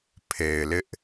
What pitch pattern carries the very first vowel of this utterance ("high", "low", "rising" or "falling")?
low